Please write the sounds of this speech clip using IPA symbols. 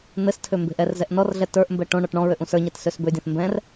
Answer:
n̪ɘstʰø mbe̤ʔɛrzɛʔ nɔrɮɛ tə˞ʔmbɛ ʈõɳɔʈ ɳɔ̃ɹøʔ ũsə˞ɲɛt søsbødʲɛ̃θ mbɛ̃r

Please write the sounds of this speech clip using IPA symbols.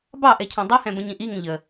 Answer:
bɑʔɛcʰɛ̃ dˤihɛ̃bə̃ɲĩ ʔiŋə̃ ʎə

